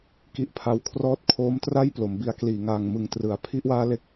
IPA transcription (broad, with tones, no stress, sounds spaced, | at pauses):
k i˦˥ ʔ pʰ a˧ w kʰ r ɔː˥˩ t̚ kʰ oː˦˥ m t r a˥˩ j p l o˩˦ m b i˦˥ a̯ k l iː˨˩ ŋ aː˨˩ ŋ m ɯ˨˩ ŋ t r ɯ˩˦ a̯ pʰ i˥˩ ʔ w aː˥˩ l e˥˩ k̚